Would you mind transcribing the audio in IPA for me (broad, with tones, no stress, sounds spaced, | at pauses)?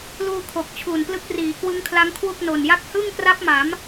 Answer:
l uː˧ kʰ o˨˩ k̚ t͡ɕʰ uː˨˩ n p l ɯ˦˥ k̚ r iː˩˦ k w ɯ˦˥ ŋ kʰ l a˦˥ ŋ kʰ w u˥˩ k̚ n o˨˩ n j a˥˩ k̚ h ɯ˥˩ ŋ k r a˦˥ p̚ m a˩˦ m